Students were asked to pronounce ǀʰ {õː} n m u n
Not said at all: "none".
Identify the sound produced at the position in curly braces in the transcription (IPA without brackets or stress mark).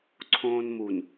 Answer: õː